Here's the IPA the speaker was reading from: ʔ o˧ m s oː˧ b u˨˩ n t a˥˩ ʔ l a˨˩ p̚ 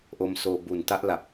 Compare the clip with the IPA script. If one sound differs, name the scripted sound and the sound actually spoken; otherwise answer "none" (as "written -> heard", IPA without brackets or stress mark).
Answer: none